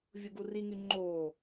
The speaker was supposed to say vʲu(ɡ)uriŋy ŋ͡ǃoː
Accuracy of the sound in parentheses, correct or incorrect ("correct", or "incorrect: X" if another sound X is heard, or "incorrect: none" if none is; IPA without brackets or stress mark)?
correct